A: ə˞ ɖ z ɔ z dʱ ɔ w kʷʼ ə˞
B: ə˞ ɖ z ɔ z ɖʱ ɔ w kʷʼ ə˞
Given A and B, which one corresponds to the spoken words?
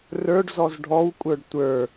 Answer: B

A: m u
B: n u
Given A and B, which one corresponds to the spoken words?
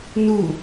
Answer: B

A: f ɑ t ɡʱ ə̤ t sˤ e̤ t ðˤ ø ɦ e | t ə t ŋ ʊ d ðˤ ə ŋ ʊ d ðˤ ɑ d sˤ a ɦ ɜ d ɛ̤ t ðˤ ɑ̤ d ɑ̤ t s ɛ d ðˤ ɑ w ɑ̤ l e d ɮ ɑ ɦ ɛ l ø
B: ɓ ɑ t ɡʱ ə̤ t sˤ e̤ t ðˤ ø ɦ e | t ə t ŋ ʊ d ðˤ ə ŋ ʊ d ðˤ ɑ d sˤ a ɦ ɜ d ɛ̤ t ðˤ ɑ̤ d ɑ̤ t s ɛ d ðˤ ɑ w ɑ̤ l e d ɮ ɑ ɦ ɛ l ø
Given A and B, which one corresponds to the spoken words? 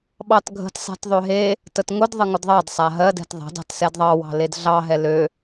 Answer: B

